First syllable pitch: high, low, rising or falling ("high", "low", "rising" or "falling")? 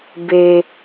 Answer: high